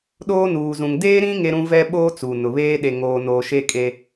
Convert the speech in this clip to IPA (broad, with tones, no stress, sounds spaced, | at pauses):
ɗ oː˦ n uː˨ z ũ˨ ŋ d eː˦ ɾ ĩ˦ ŋ e˦ ɾ ũ˦ v ɛ˦ ɓ oː˦ t͡s uː˨ n ʊ˨ β eː˦ ɗ e˨ ŋ oː˨ n o˨ ʃ e˦ kʼ e˦